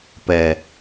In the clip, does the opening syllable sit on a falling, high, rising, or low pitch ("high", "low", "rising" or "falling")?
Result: low